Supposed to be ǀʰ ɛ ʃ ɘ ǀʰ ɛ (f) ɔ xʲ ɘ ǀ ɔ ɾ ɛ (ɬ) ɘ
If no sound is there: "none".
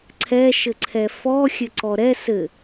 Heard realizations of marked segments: f, s

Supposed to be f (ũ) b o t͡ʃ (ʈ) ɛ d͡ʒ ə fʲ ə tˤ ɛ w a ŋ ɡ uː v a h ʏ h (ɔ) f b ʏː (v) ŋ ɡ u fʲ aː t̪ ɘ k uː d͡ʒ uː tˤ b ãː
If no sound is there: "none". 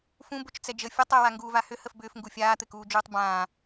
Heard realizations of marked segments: ũ, t͡s, ə, f

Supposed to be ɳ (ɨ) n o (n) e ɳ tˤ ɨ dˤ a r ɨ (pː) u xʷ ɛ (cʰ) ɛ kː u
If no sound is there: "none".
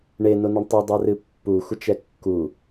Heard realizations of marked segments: e, n, pː, t͡ʃ

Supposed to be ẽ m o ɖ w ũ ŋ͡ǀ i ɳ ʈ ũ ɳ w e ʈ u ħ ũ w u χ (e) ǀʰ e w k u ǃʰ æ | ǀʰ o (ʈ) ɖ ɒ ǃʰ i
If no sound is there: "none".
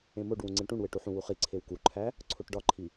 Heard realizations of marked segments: i, ʈ

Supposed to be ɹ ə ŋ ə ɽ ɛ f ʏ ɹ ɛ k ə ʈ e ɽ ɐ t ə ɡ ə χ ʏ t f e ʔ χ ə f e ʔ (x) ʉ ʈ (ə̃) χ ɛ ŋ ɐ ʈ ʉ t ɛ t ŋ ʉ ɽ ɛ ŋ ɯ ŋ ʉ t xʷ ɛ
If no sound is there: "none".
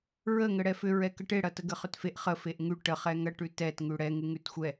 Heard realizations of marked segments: ŋ, ə

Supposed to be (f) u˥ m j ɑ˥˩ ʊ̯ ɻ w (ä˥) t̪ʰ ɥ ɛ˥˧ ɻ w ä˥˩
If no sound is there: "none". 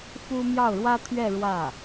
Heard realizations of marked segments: f, ä˥

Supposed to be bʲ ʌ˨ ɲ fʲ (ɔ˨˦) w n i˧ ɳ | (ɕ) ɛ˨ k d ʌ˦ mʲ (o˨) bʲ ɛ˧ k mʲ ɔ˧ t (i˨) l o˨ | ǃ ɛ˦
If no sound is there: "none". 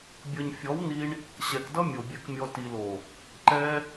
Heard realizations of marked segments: ɔ˨˦, ɕ, o˨, i˨

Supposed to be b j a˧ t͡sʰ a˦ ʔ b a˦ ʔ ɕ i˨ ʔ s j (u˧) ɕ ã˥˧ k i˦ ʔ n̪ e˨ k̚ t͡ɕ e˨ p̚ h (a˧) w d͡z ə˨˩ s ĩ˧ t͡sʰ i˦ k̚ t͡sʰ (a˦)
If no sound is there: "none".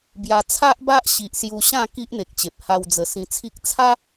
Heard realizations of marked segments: u˧, a˧, a˦

